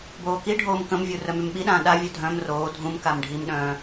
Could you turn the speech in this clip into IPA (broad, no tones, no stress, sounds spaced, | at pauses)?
b oː k i ɖʱ oː m k ə̃ m vʲ u r œ m y m ɓ i ɗ ãː ɗ a vʲ œ dʱ œ̃ m r oː dʱ ũ m k a m ɖʱ i m ɗ œ̃ː